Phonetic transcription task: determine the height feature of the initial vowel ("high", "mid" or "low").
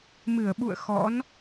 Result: high